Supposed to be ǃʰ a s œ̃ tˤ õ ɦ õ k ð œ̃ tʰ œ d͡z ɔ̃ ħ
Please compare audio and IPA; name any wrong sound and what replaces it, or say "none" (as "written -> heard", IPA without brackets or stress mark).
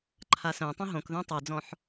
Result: tʰ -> tˤ